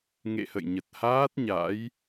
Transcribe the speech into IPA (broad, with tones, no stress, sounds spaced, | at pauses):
ŋ ḛ˧˨ h ə̰˧˨ j ɲ ə˨˩ t̚ h aː˦˥ t̚ ɲ a̰˧˥ j